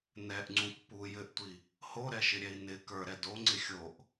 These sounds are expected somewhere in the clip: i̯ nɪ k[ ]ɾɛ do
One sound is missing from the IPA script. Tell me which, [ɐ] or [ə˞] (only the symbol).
ə˞